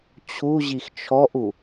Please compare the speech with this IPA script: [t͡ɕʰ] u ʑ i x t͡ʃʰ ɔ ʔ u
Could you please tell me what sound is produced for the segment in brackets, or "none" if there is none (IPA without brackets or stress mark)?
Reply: t͡ɕʰ